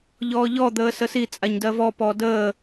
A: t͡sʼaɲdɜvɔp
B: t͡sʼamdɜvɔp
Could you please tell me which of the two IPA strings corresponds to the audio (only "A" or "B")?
A